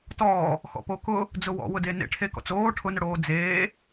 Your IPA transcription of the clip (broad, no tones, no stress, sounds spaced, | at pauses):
t ɔː | x ɔ̰ p o k ʊ | d͡z ʊ w ɔ̰ w ʊ d e n ḛ ʈʰ e k ɔ̰ t͡s oː ʈʰ ʊ n ʊ ɽ oː d͡z eː